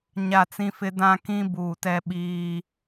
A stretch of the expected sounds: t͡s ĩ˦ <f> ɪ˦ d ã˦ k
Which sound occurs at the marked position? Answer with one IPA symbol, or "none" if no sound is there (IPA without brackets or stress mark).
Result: f